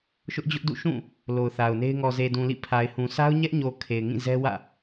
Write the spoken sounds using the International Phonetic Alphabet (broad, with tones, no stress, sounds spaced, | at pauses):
ʃ ʊ˦ ʔ d͡ʑ ʊ˦ ʔ d ṵ˦˨ ʃ ũ˦˨ | l o˨ ʊ̯ θ a˨ ʊ̯ n e˦ ɪ̯ ŋ ɔ˨ z e˨ d ũ˨ l ḭ˦˨ pʰ a˨ ɪ̯ h ũ˨ sʰ a˦ ʊ̯ ɲ ɛ˦ ʔ ɲ o˨ kʰ e˨ ɪ̯ ŋ ĩ˦˨ z ɛ˦ w ä̰˦˨